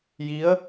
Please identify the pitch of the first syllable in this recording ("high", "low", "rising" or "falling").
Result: rising